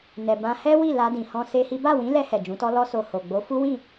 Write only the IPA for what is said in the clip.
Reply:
n ɛ˨ b ã˧ h ɛ˦ w i˦˨ l a˧ d ĩ˧ h ɔ̃˦ s e˦ h i˦ b a˦˨ w ĩ˨˦ l ɛ˧ h ɛ˨ d͡ʒ ũ˨˦ t ɔ˦ l ɔ˦ s o˧ h o˨ ɡ͡b o˨˦ f u˦ w ĩ˦˨

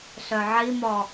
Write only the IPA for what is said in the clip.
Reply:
ɬ œ ʕ i m ɔ

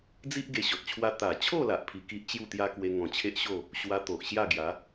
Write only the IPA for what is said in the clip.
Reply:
d͡z i˦ ʔ ɡ e˧ ɕ ɔ˨ t̚ t͡ɕʰ w a˦ t̪ a˨˩ t͡ɕʰ o˥˧ l a˨ ʔ pʰ i˧ k i˦ ʔ t͡ɕ j u˥˧ t̪ j a˦ k w e˧ ŋ ɔ̃˨˩ t͡ɕʰ e˦ ʔ ɕ o˥˧ | ɕ w a˧ t̪ o˨ ʔ ɕ j a˥˧ ɡ j a˨˦

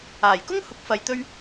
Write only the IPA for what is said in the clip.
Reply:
aː˨˩ j k ʊ˥ ŋ h ʊ˨˥ k̚ f ɐ˨ j t̪ ɵ˥ ɥ

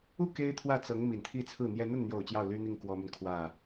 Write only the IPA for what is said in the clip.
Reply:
u˥˩ k e˥ ɪ̯ t̪ʰ w ä˥˩ t͡s ɤ˧˥ ŋ m i˨˩ n t̪ʰ i˥˧ t͡sʰ ɹ̩˥˩ n̪ j ɛ˥ n̪ ə˥˩ n n̪ j o˨˩ ʊ̯ t͡ɕ j ɑ˥˩ ʊ̯ l y˥ n̪ i˥˩ ŋ k w ɔ˥ m y˨ n kʰ w ä˥˩

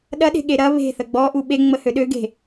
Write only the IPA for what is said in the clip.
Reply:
ɗ ɐ ɗ e̤ ɠ e ɾ ɐ β e̤ θ ə ɡ͡b ɔ ʔ u ɓ e ŋ͡m ə h ø ɗ ø ɡ e̤

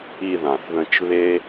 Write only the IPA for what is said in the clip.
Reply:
i˨ ð ã˩ θ ð ə̃˨ t͡ʃ β e˥

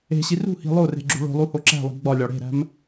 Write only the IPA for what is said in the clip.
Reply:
e̤ ɕ i r ṳ h i̤ lˠ o r e̤ ɡ͡ǁ ṳ ɭ o̤ lˠ u h o ǁ æ̤ lˠ i̤ ɡ͡b ɒ lʲ ɒ ɽ e̤ ɾ æ̤ m

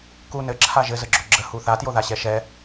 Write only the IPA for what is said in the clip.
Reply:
k u n ɘ ǁʰ a ʒ ɘ z ə ɡ͡ǁ o ɡ͡ǁ ə h u θ a t j o ð a ɕ ɛ ʃ ɛ

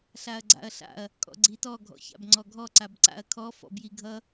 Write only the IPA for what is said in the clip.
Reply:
ɬ a ɐ̯ ɡ͡ǀ a̰ ɐ̯ ɬ a̰ ɐ̯ | kʼ ɔ̰ ɡ͡ǀ i t ɔ ɡʱ ɔ̰ ç a̰ b ŋ͡ǀ ɔ ɡʱ ɔ ǀ a b ǀ a̰ ɐ̯ kʰ ɔ f ɔ̰ b j i ɡʱ ʌ

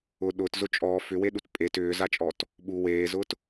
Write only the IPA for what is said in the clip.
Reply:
ʊː ɗ ʊː t z ʊ t͡ʃʼ ɔː f ʏ w e ɗ u t pʼ e t ʏː z a t͡ʃʼ ɔ t | ɓ u w eː z ʊː t

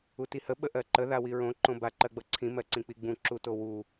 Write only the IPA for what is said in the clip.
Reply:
u t i h ə ɓ ə ʔ ɜ ǃ ə ð a w i ɹ õ ǃ õ b a ǃ ɜ ɡ͡b ʌ ǀʰ ĩ m ɜ ǀ ĩ k͡p i ɡ͡b ũ ǁ u t o w u

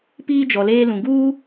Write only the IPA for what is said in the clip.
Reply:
p iː˦ d͡ʒ ɔ˨ l eː˦ l ũ˨ ɡ uː˦

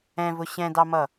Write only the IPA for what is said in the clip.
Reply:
ɛ̃ v ʊ ɕ ɛ̃ d ɑ m ʌ

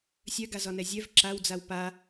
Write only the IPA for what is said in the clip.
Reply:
sʲ œ ɡ a z ɒ n ɛ zʲ œ v ǁ a w d͡z a w p a

